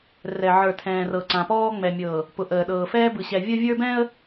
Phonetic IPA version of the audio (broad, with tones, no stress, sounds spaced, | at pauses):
r ɛ˨ ʕ ə˞˨ tʰ ɛ̃ː˨ r ɤ˨ ǀ ã˨ p ɔː˦ ŋ͡m ɛ˨ mʲ ɤ˨ | p ʊ˨ ʔ əː˨ ɗ ɤː˨ f ɛː˦ b ɯ˨ ɕ ɛ˨ vʲ ə˦ vʲ ə˞˦ b ɛ̃˦ ə̯